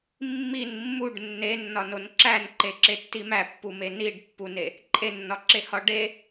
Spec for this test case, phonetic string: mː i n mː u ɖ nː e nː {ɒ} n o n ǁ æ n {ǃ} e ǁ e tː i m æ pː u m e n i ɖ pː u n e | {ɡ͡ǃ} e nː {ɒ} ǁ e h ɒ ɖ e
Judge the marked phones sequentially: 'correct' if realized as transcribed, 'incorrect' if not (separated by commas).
correct, correct, incorrect, correct